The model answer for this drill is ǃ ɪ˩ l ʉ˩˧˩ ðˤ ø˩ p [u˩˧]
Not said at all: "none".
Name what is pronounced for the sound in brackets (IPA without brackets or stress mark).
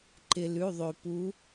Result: u˩˧